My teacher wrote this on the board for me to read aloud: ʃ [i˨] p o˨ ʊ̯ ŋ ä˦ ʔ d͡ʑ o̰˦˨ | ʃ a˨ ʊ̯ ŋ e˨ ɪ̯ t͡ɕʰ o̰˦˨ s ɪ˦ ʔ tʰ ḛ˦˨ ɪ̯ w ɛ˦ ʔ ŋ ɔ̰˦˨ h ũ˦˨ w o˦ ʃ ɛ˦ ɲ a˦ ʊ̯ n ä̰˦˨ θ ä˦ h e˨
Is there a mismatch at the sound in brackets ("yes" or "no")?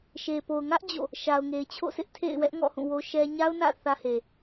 yes